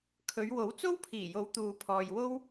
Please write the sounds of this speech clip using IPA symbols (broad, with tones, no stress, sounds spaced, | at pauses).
kʰ ɵ˨˧ ɥ w o˨˥ w t͡s o˥ w pʰ iː˨˩ j o˨˥ w t̪ uː˨ pʰ ɔː˨ j w o˥ w